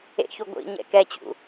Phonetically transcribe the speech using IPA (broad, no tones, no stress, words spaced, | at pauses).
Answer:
ḛçu ɡʷḭɲɛ̰ kɛt͡ɕṵ